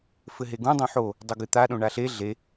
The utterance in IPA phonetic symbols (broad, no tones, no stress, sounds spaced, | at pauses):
f ɘ ɦ e ɡ ũ dˤ õ ħ o | dˤ o ɡ ɨ t̪ a ɗ õ ɳ a ɬ e ɮ e